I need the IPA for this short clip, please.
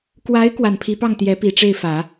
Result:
kwa˧˥ɪ̯ kwa˨˩npʰi˧˥pɑ˥˩ŋ t̪jɛ˧˥pi˨˩ʈ͡ʂe˥˩ɪ̯fä˨˩˦

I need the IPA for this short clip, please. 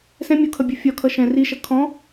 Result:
sɛ̃ mʲukʰʌbʲu fʲɒkʰʌ ʃɛ̃ riʃʌ kʰɔ̃

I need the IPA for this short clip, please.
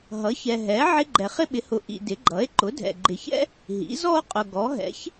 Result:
ɦʌ˩˥çɛ˨ɦɛ˩˥ ʕɪ˥ ɡ͡ǃɛ˨χɪ˥ɓɪ˩˥hʊ˨ ʔḭ˨dɪ˩˥ ɡ͡ǃʌ˩˥e̯ ǃʊ˩˥dʱɛ̰˨ɡ͡ǃɪ˨çɛ̰˥ | ɦḭ˩˥zɔ˥o̯ qʼʊ˨ɡɔ˩˥ ɦɛ̰˩˥ç

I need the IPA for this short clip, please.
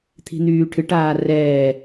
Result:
t̪ʰi̤n̪yːʈʰɨʈaː rɛː

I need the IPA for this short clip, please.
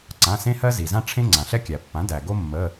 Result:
ǀã˩˧˩sẽ˦hɜ˦ zi˩ zã˦ʈ͡ʂʰẽ˦ ŋ͡ǀã˩ɬɛ˦kʲæ˩pːã˩˥ dæ˩ ɡo˦mːə˩˧˩

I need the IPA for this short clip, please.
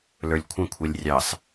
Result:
lə˞lʲkʷʰə̃kʷʰɛlʲ rʲɑs

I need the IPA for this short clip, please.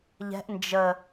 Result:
ʎɛ̤ʔ nd͡ʒə

